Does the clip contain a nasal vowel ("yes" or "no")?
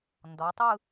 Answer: no